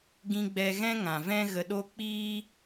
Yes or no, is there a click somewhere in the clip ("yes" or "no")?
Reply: no